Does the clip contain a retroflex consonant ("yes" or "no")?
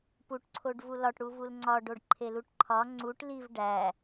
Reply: yes